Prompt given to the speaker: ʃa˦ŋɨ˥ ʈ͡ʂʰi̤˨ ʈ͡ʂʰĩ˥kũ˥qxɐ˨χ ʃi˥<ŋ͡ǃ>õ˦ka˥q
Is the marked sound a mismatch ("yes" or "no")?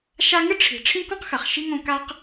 yes